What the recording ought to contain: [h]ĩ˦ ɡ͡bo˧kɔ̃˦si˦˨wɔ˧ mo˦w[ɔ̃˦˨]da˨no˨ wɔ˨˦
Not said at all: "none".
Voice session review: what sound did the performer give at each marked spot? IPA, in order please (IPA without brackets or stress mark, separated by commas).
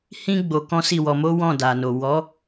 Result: h, ɔ̃˦˨